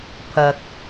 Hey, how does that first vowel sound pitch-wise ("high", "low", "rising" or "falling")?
low